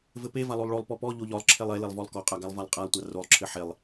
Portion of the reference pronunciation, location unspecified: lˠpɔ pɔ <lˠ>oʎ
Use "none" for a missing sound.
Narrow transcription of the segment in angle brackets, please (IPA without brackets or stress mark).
ʎ